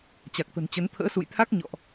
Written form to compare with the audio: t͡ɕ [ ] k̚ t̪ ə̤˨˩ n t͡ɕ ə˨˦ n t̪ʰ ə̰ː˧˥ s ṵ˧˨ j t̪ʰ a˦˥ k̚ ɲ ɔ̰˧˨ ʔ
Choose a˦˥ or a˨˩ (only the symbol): a˨˩